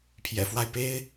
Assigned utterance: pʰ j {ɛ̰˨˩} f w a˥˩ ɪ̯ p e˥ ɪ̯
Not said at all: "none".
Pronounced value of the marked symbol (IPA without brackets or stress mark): ɛ̰˨˩